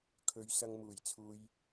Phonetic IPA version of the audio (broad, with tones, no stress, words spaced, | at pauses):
kʰɵ˨˧ɥ sɐ˧ŋmuː˨˩jt͡sʰuː˧j